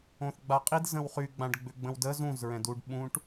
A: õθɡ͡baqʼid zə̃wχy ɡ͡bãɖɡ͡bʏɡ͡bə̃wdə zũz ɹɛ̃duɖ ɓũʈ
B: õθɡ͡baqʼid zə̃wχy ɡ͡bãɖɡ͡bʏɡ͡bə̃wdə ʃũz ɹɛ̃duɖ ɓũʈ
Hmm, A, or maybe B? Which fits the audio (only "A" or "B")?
A